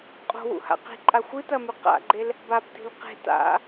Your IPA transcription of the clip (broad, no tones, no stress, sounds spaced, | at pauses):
qʼ o̤ w ṵ h a̰ q i̤ ǃʼ a xʷ ɨ t ɐ m ʉ q a̰ ɡ͡ǃ e l | b a b t i̤ l q e̤ t a̰